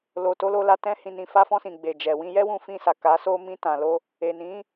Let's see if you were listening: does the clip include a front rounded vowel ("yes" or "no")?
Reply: no